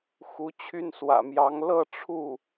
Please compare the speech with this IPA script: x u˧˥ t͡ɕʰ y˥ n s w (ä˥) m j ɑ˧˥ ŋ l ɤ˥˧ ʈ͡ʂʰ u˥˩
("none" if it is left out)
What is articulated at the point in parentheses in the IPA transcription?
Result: ä̰˨˩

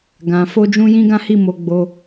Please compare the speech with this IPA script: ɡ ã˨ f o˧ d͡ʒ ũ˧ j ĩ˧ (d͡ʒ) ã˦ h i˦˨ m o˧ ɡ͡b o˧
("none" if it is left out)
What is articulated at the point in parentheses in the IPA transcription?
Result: ɡ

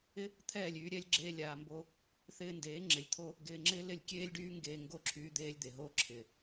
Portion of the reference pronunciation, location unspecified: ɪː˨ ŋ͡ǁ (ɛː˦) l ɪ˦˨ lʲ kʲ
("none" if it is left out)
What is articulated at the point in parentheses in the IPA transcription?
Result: ɪː˦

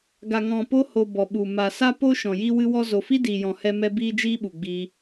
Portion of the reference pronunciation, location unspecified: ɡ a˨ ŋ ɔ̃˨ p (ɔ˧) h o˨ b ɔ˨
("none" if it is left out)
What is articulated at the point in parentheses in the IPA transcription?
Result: o˧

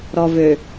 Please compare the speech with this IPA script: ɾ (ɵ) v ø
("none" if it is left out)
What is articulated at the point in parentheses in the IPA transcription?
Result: ɔ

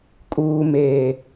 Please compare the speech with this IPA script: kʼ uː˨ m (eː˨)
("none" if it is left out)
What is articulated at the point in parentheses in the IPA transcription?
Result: eː˨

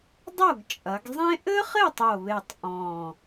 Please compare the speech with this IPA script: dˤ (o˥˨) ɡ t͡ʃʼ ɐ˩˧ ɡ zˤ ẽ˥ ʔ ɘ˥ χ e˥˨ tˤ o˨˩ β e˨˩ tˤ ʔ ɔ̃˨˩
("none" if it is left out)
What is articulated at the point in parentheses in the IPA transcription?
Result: o˥˨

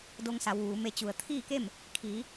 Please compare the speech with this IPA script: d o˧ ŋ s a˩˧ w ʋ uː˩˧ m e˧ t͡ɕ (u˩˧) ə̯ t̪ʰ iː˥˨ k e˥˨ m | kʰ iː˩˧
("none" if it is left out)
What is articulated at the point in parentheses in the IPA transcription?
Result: u˩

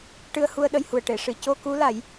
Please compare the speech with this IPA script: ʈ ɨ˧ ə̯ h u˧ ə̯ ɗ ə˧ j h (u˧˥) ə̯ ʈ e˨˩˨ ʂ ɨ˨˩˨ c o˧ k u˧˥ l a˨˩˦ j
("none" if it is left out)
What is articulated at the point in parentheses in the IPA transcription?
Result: u˨˩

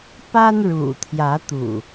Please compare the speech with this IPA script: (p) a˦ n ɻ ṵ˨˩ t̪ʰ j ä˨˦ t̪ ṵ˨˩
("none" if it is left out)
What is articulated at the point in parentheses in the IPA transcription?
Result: p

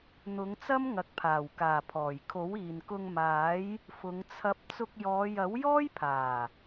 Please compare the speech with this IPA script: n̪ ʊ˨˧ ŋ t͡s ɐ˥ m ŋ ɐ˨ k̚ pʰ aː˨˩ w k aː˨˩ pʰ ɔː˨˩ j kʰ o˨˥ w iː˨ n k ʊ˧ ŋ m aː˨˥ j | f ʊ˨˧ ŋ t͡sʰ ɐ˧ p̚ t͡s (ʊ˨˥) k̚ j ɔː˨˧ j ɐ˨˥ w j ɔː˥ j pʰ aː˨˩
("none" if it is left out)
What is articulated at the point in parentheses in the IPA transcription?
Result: ʊ˧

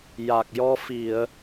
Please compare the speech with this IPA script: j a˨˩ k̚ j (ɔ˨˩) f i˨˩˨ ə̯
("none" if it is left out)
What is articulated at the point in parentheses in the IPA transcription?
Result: ɔ˧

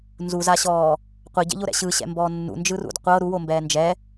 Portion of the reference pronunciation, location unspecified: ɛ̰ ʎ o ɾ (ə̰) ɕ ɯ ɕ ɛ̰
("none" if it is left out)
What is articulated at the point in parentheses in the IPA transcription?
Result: ɛ̰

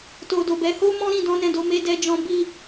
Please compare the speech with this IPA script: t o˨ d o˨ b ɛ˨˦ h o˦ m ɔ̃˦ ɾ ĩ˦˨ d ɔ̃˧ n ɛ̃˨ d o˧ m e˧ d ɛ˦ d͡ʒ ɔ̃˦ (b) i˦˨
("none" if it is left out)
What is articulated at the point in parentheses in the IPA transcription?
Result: b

